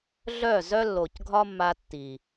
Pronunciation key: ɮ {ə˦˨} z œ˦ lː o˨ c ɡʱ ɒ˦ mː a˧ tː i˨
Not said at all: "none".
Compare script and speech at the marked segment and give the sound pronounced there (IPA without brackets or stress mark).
œ˦˨